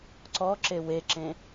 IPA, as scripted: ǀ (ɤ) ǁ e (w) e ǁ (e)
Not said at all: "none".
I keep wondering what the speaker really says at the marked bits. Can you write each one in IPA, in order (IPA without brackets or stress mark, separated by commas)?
ɔ, w, ẽ